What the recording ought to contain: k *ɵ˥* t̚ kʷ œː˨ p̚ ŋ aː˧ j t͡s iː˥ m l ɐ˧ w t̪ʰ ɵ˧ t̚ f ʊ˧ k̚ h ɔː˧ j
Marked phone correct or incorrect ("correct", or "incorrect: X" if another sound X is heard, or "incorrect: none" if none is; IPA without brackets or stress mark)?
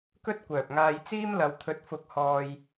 correct